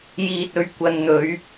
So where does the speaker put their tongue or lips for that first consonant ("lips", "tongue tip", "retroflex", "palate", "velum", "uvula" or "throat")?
palate